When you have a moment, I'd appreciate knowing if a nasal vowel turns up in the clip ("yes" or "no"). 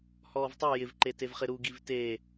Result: no